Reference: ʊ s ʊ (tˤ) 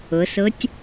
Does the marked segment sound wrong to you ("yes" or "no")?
yes